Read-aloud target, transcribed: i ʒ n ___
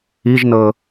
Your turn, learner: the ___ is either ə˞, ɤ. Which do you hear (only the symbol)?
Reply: ɤ